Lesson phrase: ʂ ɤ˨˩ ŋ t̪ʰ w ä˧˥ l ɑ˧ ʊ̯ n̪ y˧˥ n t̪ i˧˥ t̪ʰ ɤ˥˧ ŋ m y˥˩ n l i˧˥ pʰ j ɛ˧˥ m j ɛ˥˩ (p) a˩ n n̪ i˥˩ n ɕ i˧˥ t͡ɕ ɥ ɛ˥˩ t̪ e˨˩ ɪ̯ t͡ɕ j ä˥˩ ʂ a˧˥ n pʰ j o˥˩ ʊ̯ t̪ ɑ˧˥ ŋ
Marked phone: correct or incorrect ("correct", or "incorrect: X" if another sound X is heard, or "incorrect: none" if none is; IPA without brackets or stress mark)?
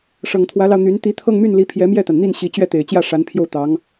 incorrect: t̪